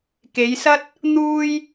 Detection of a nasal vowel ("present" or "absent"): absent